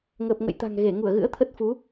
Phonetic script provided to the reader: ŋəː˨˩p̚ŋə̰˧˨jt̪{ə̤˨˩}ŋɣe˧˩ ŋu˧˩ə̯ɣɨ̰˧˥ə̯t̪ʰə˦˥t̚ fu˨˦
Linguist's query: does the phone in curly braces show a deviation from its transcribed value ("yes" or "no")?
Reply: yes